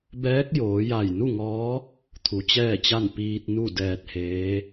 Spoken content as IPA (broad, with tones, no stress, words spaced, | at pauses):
bɛː˧˥k̚joː˩˧ja˧˩j nu˥˨ŋɔː˧˥ | t̪ʰu˩˧t͡ɕɛː˥˨t͡ɕa˥˨n piː˧t̚nu˥˨ dɛː˧t̚heː˧˥